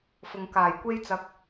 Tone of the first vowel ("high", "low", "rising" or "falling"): low